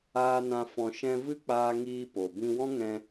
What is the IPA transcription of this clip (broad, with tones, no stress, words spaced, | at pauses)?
aː˧nã˧ fɔ̃˧ ʃɛ̃˧ vɨ˦k͡paː˧ŋiː˧ po˨ bĩ˧wɔ̃˦ ŋɛ̃˧